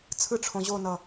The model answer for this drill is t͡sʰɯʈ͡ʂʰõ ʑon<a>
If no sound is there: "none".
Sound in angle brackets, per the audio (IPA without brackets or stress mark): ʌ